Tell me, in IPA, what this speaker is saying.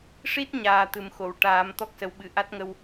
ʂ i˦˥ t̚ ɲ aː˨˩ t̪ ɨ˨˩ m x o˨˩˨ w ʈ aː˨˩˦ m t̪ ɔ˦˥ k̚ s ə˨˩˦ w ɓ ɨ˨˩˨ ʔ a˦˥ t̚ ŋ ə˧ w

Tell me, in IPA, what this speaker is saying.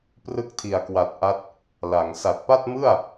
p r ɯ˦˥ k̚ tʰ i˨˩ a̯ k w a˨˩ t̚ ʔ a˦˥ t̚ | l a˩˦ ŋ s a˨˩ t̚ p a˥˩ t̚ m ɯ˥˩ a̯

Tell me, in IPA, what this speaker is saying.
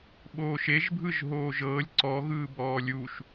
ɓ oː ʃ e ʒ bʱ ɯ ʒ ɦ oː ʒ ɤː lʲ ǀ ɔ ɣ ɯː b ɔː lʲ u ʃ

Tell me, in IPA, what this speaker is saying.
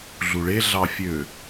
ɮ u ɭ e ɮ ɑ fʲ ø

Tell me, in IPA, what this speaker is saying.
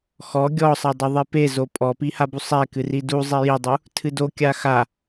x ɔ ɡʲ ɔ sˤ ɛ dˤ u ðˤ i p e z o pʼ ɔ p i h a b u sˤ ɛ k ɨ r i d u zˤ i j i dˤ u | tʰ ɨ d o kʲ a x a

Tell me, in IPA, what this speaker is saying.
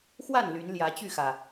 x w a˥˨ n l y˨˦ n l j ä˨˦ t͡ɕ y˥˨ x ä˩

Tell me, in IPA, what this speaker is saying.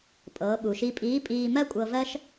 pʼ ɤː˩˧ ɓ u˩ ʃ i˧ pʼ iː˧˥ pʼ iː˧ m ɜ˥ kʷʼ ɤ˧ v ɜ˥ ʃ

